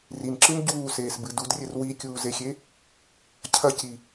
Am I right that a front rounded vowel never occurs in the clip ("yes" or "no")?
yes